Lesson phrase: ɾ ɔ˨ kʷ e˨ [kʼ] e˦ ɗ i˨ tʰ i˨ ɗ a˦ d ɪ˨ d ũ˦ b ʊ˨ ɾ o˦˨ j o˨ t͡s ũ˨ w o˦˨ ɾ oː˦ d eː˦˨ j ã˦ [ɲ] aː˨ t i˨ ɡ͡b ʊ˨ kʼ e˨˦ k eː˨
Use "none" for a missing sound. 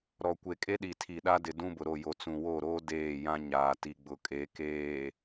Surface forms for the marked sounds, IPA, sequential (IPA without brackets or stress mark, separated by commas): kʼ, ɲ